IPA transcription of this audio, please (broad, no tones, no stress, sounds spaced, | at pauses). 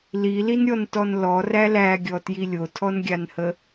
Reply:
l i l i n ɾʲ ɔ n t ɔ n l ɔ r æ l æ ɡʲ ɔ t j i lʲ o tʰ ɔ n ɡʲ a n h ə